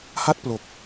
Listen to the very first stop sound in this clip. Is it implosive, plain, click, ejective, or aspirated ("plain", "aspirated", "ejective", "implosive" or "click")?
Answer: plain